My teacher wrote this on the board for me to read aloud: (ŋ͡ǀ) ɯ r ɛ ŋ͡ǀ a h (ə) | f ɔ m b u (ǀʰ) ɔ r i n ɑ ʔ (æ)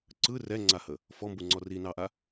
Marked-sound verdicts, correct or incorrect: incorrect: ǀ, correct, incorrect: ŋ͡ǀ, incorrect: a

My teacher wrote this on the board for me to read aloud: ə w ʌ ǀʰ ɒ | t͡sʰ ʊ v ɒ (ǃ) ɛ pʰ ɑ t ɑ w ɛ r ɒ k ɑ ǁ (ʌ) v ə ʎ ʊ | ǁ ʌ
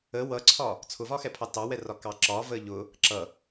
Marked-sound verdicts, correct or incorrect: incorrect: x, incorrect: ɒ

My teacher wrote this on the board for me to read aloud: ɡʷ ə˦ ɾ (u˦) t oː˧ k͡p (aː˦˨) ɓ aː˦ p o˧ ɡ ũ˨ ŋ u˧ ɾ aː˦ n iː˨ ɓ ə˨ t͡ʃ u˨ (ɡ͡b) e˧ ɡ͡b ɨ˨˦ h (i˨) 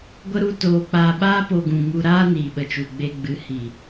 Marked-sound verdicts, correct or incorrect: correct, incorrect: aː˧, correct, correct

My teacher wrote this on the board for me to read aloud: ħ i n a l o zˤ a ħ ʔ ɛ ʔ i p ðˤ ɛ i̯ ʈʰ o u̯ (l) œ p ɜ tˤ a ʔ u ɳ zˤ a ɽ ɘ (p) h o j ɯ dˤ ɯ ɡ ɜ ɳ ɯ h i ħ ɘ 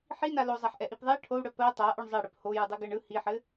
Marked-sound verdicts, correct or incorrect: incorrect: ɽ, correct

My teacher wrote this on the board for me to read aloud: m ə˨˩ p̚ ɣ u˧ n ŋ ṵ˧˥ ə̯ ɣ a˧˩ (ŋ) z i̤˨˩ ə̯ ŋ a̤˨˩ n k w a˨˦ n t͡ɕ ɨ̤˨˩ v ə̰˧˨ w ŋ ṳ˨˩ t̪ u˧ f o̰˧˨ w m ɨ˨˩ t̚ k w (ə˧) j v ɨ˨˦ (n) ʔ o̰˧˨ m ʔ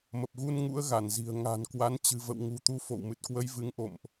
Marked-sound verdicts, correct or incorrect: incorrect: n, correct, incorrect: ŋ

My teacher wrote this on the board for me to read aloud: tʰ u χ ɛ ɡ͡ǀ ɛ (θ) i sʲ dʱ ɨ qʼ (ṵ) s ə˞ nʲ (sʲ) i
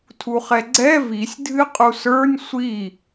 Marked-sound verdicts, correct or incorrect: incorrect: v, incorrect: u, incorrect: sʷ

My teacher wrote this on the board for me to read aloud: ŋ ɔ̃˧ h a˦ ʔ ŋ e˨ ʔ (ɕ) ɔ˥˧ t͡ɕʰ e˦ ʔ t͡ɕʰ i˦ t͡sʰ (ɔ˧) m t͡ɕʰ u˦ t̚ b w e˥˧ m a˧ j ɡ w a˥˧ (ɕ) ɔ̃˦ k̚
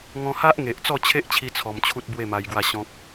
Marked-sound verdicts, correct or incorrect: incorrect: t͡s, correct, correct

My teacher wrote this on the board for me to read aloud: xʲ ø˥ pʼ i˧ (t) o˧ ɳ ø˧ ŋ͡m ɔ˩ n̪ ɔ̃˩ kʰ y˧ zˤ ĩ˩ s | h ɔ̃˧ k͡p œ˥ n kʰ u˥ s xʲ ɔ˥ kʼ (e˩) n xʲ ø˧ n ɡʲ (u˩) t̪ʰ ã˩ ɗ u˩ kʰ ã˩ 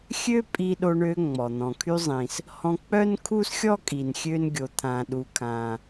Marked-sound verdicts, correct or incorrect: incorrect: ɗ, incorrect: i˩, incorrect: o˩

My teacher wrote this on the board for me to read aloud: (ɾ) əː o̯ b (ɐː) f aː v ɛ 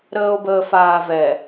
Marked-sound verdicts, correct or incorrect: correct, incorrect: əː

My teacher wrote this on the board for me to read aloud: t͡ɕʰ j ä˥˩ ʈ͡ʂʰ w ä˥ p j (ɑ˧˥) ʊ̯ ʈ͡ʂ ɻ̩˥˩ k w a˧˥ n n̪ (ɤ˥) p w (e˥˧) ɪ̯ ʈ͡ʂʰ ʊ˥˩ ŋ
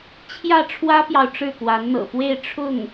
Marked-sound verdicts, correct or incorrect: incorrect: ɑ˨, incorrect: ɤ̰˨˩, correct

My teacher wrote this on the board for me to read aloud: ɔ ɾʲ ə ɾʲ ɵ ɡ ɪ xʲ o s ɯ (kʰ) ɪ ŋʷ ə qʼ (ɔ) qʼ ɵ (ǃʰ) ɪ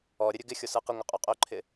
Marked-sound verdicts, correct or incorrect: incorrect: q, incorrect: ɵ, correct

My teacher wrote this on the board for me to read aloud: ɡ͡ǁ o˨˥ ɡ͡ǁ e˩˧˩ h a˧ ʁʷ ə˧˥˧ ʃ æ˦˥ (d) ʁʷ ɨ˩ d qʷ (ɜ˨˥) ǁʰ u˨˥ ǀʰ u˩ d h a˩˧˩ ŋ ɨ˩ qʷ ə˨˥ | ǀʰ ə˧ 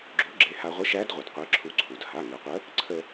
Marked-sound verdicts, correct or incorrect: correct, correct

